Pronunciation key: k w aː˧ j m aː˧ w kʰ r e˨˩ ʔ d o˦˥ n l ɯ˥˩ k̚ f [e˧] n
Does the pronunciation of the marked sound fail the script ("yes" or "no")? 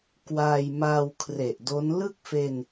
no